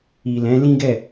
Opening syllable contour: low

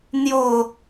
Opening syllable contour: low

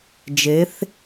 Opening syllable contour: rising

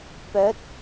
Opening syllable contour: rising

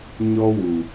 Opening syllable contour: high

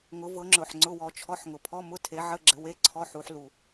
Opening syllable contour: rising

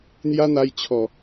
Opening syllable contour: high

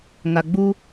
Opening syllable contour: low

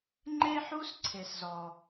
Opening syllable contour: high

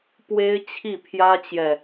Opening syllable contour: high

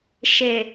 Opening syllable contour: low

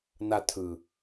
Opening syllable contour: low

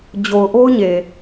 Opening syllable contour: low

